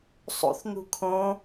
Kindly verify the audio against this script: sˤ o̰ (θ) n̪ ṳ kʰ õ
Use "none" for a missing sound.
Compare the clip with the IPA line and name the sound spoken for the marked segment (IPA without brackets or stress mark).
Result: θ